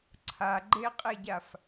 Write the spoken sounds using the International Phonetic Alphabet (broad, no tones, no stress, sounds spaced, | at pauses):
ǀʰ a ɡ͡ǃ e qʼ e ɟ a f